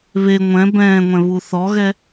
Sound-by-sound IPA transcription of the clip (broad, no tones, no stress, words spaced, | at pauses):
βe ŋʷɛ̃ bɛ̃ː ŋʷɛ̃βuθɔɣɛ